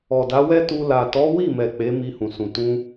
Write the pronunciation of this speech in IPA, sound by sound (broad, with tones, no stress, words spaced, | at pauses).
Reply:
ɔ˨da˨˦wɛ˦tu˧ la˨ tɔ˨˦wi˦˨mɛ˨ k͡pe˨˦mi˧hũ˨sũ˨ tũ˧